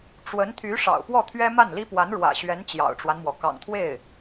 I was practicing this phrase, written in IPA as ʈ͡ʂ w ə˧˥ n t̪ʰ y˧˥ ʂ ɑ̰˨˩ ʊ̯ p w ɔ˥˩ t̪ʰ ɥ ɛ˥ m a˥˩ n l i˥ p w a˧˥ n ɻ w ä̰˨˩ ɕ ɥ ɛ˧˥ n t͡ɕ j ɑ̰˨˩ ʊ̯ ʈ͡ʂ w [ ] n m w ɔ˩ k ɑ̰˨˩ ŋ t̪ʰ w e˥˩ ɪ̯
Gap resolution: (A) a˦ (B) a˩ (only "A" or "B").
A